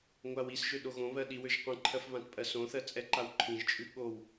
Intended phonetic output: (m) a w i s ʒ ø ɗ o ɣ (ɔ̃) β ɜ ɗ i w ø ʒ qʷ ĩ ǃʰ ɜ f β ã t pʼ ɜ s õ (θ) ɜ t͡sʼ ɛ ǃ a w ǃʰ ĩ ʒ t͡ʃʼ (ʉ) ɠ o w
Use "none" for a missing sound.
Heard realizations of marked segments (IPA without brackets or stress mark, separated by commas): ŋʷ, õ, θ, ʉ